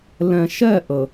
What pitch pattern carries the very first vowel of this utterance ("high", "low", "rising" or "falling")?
low